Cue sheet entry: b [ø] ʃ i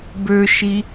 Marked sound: correct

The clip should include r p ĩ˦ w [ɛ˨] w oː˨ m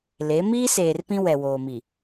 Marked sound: correct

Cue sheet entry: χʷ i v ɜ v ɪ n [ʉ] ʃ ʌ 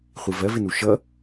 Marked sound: incorrect: u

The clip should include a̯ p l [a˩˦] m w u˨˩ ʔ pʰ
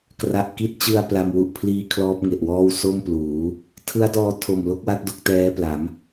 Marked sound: incorrect: a˧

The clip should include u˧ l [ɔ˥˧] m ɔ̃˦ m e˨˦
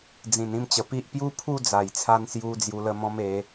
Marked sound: incorrect: ə˥˧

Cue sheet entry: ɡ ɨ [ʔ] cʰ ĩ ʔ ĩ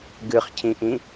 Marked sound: incorrect: χ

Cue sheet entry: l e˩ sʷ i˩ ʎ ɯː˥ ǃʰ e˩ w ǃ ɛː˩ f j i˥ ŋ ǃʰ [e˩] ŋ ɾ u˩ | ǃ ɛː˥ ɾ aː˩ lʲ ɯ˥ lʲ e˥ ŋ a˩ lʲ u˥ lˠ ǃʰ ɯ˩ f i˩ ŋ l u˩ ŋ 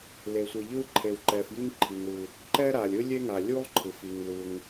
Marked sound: incorrect: i˩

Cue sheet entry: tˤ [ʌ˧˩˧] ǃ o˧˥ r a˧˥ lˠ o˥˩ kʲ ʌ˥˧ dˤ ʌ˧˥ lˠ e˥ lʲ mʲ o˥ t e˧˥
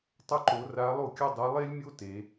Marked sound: incorrect: ʌ˥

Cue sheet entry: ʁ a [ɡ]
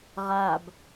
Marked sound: incorrect: b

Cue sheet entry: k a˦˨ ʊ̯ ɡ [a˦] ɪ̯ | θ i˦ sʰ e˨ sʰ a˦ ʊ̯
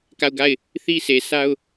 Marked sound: incorrect: a˦˨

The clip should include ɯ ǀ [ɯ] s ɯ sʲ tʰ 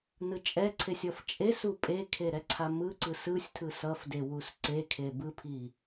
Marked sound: correct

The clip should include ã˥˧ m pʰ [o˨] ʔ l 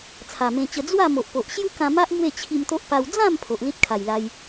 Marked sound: correct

